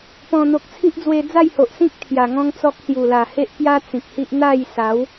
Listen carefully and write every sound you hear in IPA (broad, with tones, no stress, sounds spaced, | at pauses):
p ɔ̃˨˩ n̪ o˨ k̚ t͡sʰ i˦ ʔ d͡z w e˧ d͡z a˥˧ j h o˨ ʔ s ĩ˦ k̚ t̪ʰ j a˨˩ ŋ ɔ̃˦ ŋ t͡s ɔ˦ k̚ s j u˨˩ l a˨˩ h e˦ ʔ p j a˦ t͡s ĩ˨ k̚ h i˦ ʔ n̪ a˥˧ j s a˨˦ w